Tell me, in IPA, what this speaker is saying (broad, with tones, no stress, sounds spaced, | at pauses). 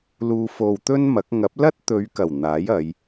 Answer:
l uː˧ f o˧ w t̪ ɵ˥ n m ɐ˨˥ k̚ ŋ ɐ˨˥ p̚ l ɐ˥ t̚ t̪ ɵ˨˧ ɥ k ɐ˨˩ w n̪ aː˨˥ j ɐ˨˧ j